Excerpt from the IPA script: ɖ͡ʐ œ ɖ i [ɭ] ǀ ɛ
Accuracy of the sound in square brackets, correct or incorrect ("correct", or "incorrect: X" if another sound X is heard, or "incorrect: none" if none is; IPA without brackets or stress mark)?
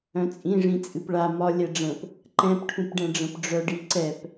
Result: incorrect: none